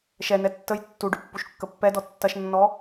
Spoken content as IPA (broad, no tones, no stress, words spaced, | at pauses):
ʃɛnɛ tːəj tːuɖʏ pːuʃkːəpːɛdɔ tːɐʃnːɔ